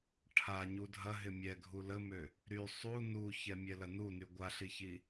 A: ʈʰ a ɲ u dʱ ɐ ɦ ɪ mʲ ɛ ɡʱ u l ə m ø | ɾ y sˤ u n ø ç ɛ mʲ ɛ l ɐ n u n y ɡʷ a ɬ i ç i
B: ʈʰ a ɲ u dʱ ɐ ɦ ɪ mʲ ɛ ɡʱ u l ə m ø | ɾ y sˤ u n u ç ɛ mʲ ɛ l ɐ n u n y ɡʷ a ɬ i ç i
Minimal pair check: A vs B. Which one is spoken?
B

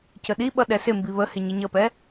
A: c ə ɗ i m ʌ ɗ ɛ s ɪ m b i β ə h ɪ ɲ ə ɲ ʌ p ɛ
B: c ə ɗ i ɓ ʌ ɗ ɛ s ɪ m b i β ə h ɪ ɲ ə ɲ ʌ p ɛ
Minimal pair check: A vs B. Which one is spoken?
B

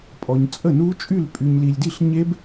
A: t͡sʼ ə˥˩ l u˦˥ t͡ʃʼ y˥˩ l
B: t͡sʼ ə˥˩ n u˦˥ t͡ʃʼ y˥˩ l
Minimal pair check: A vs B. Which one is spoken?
B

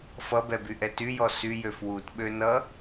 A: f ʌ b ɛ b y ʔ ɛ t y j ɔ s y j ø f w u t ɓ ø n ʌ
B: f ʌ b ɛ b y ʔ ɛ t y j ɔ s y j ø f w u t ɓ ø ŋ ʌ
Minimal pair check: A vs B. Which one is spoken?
A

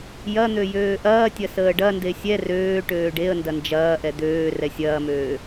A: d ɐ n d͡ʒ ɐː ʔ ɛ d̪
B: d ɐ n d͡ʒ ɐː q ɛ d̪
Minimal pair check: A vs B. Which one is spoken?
A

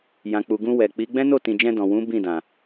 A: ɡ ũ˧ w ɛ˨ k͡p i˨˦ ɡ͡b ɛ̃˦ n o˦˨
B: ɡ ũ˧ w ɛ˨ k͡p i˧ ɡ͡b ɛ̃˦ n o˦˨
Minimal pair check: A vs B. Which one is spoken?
A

